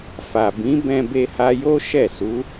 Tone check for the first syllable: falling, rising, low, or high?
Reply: low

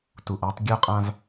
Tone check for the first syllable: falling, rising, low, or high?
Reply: low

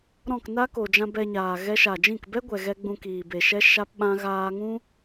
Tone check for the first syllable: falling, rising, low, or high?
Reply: falling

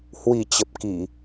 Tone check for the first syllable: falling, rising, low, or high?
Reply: low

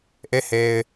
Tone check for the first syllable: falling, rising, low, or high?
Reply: falling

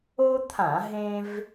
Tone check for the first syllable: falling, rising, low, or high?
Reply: high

